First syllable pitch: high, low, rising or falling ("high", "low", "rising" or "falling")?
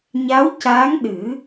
rising